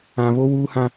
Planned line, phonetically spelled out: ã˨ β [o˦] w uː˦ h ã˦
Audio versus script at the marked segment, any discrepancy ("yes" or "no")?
no